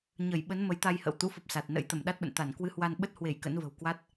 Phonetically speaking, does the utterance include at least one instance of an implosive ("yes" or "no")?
yes